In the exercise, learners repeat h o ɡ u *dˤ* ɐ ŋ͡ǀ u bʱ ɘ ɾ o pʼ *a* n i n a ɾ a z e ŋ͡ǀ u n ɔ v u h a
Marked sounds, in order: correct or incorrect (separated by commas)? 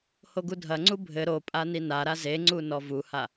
incorrect, correct